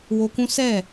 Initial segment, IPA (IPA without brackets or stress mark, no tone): w